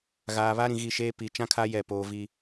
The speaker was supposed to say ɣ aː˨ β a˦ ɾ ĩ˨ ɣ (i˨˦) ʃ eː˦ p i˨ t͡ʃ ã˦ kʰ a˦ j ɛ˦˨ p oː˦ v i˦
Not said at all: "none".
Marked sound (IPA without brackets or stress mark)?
i˦˨